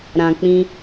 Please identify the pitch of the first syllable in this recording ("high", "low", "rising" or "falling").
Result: low